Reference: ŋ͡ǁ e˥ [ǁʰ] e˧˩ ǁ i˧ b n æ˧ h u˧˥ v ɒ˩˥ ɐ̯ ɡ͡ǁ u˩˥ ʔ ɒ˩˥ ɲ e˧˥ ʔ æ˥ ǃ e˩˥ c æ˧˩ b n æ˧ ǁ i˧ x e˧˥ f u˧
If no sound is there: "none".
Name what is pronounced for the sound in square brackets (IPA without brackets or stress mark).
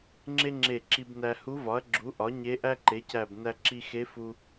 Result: ŋ͡ǁ